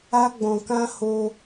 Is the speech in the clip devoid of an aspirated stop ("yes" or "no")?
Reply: yes